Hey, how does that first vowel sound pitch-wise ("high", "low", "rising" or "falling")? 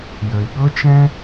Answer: low